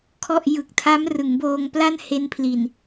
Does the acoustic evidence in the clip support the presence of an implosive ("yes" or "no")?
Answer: no